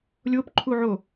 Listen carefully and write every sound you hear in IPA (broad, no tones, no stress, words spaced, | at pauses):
lʲopǃʰuʕo